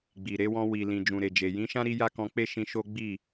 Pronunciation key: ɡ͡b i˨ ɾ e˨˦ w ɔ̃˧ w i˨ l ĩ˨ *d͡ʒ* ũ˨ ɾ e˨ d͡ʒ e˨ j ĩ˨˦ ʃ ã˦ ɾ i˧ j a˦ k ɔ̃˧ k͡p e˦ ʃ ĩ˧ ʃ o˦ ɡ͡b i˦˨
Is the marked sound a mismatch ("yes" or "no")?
no